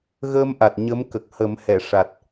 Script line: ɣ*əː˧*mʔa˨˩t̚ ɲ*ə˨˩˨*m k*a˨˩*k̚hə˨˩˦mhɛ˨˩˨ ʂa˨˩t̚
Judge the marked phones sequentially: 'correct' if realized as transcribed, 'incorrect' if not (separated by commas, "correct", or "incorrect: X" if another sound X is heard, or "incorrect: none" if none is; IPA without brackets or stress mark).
correct, incorrect: ə˧˥, incorrect: ə˨˩